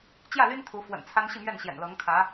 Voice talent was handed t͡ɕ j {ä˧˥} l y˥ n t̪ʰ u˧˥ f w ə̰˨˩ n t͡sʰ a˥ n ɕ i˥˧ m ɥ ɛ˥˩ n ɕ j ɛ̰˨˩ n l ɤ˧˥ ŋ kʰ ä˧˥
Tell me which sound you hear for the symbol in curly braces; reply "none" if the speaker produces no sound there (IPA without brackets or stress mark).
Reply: ä˥˩